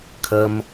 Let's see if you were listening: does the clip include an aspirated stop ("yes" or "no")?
yes